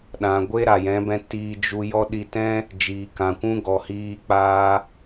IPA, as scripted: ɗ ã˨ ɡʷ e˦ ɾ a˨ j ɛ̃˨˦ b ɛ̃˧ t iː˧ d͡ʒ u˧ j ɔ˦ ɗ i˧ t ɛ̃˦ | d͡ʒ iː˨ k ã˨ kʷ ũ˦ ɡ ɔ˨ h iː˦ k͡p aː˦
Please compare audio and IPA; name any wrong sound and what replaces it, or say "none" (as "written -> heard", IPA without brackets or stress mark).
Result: none